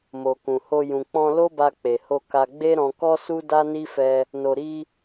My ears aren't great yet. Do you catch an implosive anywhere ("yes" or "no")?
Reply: no